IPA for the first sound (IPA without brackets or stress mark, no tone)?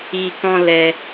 i